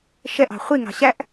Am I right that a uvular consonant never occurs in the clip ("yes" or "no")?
no